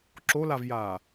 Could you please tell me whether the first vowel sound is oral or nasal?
oral